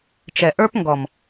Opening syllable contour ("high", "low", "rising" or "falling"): low